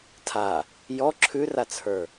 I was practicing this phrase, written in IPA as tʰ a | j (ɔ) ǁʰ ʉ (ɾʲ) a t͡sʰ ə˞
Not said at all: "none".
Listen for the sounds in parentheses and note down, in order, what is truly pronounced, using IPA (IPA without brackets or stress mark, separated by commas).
ɔ, r